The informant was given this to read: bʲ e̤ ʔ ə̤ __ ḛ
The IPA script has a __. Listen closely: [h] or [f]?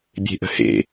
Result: h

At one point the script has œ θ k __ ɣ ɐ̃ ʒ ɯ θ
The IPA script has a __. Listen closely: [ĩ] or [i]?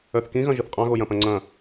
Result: ĩ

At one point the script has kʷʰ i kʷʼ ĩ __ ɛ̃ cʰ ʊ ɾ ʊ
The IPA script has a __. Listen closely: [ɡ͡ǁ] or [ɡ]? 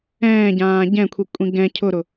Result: ɡ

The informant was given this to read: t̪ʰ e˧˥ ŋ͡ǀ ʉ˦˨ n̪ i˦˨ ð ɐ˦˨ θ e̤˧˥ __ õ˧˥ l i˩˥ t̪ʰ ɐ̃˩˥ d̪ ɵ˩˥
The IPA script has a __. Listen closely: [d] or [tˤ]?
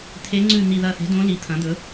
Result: d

